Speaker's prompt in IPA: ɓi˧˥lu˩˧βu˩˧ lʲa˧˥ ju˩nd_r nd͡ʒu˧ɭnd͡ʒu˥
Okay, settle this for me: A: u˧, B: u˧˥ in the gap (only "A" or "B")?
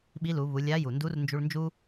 B